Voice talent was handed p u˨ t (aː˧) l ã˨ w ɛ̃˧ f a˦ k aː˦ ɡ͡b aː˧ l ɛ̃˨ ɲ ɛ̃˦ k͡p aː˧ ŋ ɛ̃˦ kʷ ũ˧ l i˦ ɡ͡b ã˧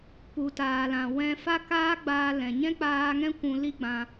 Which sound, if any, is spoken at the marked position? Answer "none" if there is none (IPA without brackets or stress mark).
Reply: aː˨